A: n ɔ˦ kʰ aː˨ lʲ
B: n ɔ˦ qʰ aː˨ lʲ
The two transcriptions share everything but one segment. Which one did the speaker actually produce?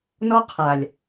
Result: B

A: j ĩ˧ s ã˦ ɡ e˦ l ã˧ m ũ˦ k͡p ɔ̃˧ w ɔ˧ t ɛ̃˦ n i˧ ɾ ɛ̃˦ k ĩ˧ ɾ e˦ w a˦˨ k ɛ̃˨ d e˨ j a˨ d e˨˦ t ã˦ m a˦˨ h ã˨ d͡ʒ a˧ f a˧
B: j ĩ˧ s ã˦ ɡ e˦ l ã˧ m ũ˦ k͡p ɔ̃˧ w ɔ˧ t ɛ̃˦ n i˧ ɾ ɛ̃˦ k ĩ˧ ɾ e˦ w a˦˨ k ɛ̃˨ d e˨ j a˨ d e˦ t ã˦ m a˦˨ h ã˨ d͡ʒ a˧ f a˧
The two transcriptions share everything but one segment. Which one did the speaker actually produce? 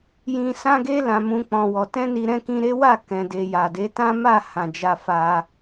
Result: A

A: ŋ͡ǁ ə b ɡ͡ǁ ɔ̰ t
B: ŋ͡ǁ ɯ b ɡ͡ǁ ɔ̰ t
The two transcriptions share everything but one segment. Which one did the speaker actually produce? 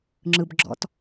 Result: B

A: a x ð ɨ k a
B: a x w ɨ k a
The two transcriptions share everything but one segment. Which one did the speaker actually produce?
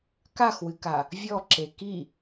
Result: B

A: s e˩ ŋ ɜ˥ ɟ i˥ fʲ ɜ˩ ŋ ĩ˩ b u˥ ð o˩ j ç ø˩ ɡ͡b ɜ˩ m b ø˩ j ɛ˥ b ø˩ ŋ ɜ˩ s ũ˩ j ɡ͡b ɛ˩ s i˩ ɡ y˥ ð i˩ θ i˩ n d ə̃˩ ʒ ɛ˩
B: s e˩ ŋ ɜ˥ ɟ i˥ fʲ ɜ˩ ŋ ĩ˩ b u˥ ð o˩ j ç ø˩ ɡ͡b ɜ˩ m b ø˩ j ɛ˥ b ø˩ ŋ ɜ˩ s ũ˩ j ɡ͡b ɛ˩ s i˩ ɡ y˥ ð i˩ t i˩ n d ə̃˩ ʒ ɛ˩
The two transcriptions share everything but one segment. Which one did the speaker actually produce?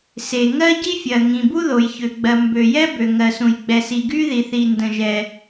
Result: A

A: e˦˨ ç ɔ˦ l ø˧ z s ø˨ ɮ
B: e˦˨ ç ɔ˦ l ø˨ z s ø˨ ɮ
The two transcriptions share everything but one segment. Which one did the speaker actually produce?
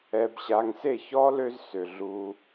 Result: A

